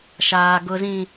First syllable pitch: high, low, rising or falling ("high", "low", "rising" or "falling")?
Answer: low